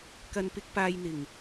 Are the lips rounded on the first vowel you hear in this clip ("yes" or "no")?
no